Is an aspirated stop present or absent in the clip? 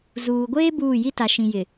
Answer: absent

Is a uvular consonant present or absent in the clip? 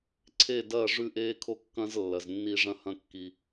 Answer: absent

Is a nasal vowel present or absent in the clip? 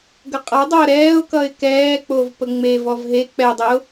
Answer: absent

